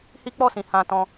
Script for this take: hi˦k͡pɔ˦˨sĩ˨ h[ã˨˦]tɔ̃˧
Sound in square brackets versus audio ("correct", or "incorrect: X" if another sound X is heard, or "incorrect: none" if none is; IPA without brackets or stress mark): incorrect: ã˧